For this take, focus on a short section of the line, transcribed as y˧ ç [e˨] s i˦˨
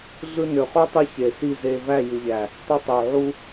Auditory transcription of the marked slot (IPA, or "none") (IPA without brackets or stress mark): e˨